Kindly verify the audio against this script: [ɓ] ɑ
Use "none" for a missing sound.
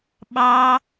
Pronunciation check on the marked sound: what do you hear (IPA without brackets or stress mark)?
ɓ